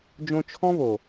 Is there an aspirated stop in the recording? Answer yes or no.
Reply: yes